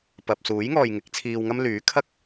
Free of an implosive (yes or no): yes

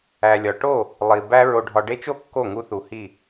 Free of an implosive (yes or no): yes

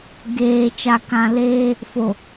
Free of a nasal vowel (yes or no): no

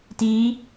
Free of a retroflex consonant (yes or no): yes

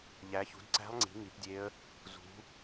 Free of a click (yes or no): no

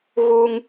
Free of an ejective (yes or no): yes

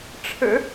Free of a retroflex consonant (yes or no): no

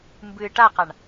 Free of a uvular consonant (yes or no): no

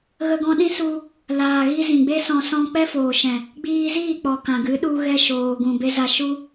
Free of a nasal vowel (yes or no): no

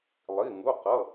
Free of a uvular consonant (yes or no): no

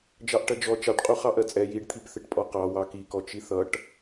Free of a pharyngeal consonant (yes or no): yes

